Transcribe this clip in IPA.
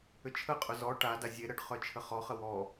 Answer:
ʏ t͡ʃʰ ə qʼ ʊ z ɔ ʈ a d a zʲ e ɾ ə ɖ χ œ t͡ʃʰ ə χ ɔ χ ə w ɔ

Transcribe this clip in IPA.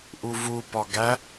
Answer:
ʔ u v u p ɒ ɡ æ

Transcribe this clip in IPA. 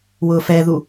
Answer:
w ʊː f ɛ ð u

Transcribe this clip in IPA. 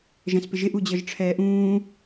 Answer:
ʒ ɛ̃ s p ɪ ʒ ɪ ʔ u d͡ʑ ɤ ʒ ʈ͡ʂʰ ɛː ʔ ũː

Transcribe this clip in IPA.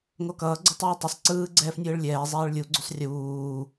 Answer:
ŋ o k ʌː ɡ͡ǀ ɯ tˤ ɯː tˤ ʌ sˤ ǀ ɯː ɡ͡ǀ ɛː f nʲ ɯː ɭ lʲ ɛː zˤ ɛː ɭ lʲ u ɡ͡ǀ u sˤ rʲ uː

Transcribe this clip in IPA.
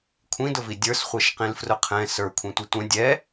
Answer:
kʷʰ ĩ d ʊ v i dʲ ə˞ s χʷ ɛ ʃ q ĩ l f r ʊ qʰ ɛ̃ s ə˞ kʷʰ ĩ tʷ ɛ tʷ ɛ̃ dʲ ɛ

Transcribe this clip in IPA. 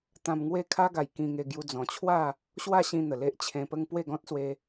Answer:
t̪ ã˧ m ŋ w e˥˧ kʰ a˦ ɡ a˨˩ j k ĩ˧ ŋ e˧ ɡ j u˧ d͡z ɔ̃˨˩ t͡ɕʰ w a˥˧ | ɕ w a˥˧ ɕ ĩ˧ n̪ ə˨˩ l e˦ ʔ t͡ɕʰ ẽ˧ p ə˦ ŋ p w e˥˧ ɡ ɔ̃˦ t̚ s w e˧

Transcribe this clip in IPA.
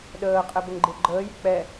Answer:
ɗ əː qʼ ɛ b ə ŋ ɡ͡ǃ e ɡ͡ǃ əː j y k͡p ɛ

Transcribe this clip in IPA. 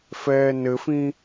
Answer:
f ɛː n ɘ f ĩ

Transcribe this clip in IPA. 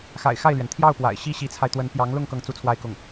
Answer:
x a̰˨˩ ɪ̯ x a˥˩ ɪ̯ l ɥ ɛ˩ n t̪ʰ j ɑ˥˩ ʊ̯ p w a̰˨˩ ɪ̯ ɕ i˥ ɕ i˧˥ t͡sʰ a˧ ɪ̯ t̪ w ə˧˥ n p j ɑ˧˥ ŋ l ʊ˥˧ ŋ k ɤ˥˧ ŋ t͡s u˥˧ t͡sʰ w a˥˧ ɪ̯ k ʊ˥˩ ŋ

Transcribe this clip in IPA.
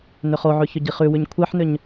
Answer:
n ʏ χ o ʕ ʉ ç ʏ ɟ i χ ʉ w ʉ ɲ kʷʰ e ħ n ʏ ɲ

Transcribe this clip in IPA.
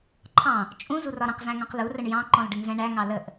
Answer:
ǃʰ ɑ̃ | t͡ʃʼ ũ z u r ɒ ɾ ə̃ q z æ̃ ŋ ɔ̃ q l u r ə ɳ j ɑ̃ ǃ ɔ̃ l ɖ ə ŋ z ɛ̃ ɳ æ ŋ ɑ l ə ʔ

